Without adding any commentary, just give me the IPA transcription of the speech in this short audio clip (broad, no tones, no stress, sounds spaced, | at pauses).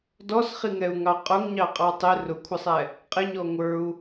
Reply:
d ɔ s χ i ŋ ɛ u̯ ŋ ɑ qʼ ʊ ŋ ɲ ɑ qʼ ɑ tˤ ɪ r ʊ kʷʰ ə sˤ ɛ | qʼ ɪ ɲ ɔ ŋʷ ə˞ u̯